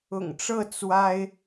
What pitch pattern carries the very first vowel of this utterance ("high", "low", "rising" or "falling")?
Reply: low